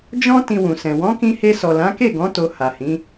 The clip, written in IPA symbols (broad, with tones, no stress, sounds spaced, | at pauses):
d͡ʒ ɔ̃˦ t ĩ˧ w ũ˨ s ɛ̃˨ w ɔ̃˨˦ k ĩ˧ h e˧ s ɔ˨ l ã˨˦ k e˦˨ ɡ ɔ̃˨˦ t o˧ h a˨ h ĩ˨˦